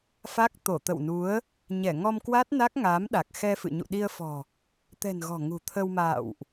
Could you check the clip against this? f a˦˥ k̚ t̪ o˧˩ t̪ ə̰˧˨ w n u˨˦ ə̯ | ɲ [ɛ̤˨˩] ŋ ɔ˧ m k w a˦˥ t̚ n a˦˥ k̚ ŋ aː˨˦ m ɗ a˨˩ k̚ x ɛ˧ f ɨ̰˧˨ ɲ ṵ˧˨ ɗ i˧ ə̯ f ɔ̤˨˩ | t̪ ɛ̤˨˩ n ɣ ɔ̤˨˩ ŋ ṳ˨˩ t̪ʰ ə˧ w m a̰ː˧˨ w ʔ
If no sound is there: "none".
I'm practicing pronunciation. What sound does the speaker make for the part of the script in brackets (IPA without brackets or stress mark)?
ɛ˧˩